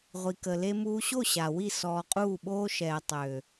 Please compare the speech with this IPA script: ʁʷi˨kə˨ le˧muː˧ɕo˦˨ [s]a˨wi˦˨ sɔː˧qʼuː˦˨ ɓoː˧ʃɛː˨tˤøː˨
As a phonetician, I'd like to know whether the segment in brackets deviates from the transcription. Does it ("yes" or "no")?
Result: yes